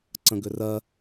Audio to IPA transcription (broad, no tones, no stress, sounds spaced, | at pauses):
ǀ ə̃ ɡ ʏ r ɜ